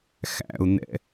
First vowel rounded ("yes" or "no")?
no